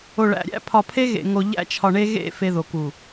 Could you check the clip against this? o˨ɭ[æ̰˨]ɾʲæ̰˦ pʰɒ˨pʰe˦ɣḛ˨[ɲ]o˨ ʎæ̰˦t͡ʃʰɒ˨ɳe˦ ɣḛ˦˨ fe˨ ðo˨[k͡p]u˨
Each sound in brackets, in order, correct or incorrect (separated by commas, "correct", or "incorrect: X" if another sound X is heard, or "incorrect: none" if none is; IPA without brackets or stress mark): correct, incorrect: ŋ, incorrect: k